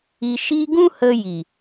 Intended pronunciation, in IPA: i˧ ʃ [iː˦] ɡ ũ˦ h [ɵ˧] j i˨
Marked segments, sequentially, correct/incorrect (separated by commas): correct, incorrect